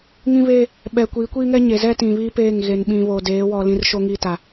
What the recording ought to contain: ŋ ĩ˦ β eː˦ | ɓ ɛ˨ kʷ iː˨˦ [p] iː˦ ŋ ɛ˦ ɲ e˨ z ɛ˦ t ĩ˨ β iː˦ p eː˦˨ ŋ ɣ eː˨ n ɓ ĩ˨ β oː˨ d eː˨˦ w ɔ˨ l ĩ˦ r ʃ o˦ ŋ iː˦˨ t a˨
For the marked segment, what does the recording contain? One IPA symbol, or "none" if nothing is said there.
kʷ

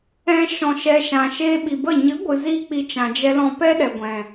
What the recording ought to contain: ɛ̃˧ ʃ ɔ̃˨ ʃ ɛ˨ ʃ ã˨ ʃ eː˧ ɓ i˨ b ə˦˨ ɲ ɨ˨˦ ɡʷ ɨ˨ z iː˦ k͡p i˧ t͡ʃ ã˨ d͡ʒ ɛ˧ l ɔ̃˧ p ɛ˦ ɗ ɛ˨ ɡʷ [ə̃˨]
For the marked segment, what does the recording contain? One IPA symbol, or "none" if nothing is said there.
ɛ̃˨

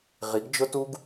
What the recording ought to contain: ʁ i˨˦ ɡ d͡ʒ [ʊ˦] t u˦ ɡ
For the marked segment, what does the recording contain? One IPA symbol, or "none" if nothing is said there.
ʊ˦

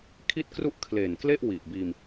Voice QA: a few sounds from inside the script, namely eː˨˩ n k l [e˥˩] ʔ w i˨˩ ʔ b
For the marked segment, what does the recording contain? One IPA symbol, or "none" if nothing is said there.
e˥˩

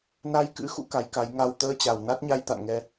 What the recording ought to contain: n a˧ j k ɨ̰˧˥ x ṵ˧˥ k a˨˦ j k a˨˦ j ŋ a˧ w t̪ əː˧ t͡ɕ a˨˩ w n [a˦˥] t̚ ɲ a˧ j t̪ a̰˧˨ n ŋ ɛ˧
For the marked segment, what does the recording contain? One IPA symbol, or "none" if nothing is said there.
a˦˥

